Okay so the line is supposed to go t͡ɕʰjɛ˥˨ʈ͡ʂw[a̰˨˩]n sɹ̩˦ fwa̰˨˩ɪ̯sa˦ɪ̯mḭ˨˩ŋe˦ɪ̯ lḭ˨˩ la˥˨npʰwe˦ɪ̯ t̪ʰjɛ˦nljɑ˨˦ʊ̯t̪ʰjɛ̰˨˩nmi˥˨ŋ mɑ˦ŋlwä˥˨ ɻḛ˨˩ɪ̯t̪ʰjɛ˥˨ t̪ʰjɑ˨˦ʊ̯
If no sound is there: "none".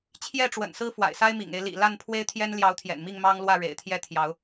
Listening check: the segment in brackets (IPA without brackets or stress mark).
ə̰˨˩